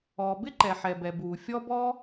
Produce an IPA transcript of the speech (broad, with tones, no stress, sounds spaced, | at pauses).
ɔː˩ b ɪ˥ ǃ ɛ˩ ħ ɛ˩ b ɛ˩ b uː˩ fʲ ɔ˥ b ɔ˥